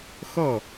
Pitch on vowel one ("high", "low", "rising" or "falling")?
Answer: falling